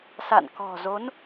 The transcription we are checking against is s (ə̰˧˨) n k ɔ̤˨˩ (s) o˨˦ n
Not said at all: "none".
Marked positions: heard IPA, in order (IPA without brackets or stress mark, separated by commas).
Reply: a̰˧˨, z